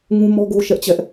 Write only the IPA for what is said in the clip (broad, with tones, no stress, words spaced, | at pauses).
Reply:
ŋũ˦ mɔ˦ɡo˦ ʃɛ˦ʔt͡ɕɛ˦ʔ